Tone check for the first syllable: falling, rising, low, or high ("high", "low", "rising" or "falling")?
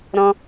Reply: high